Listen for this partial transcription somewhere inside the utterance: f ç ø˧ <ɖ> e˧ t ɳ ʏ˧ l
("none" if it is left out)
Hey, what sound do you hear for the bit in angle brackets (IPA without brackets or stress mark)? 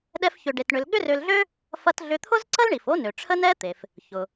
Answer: ɖ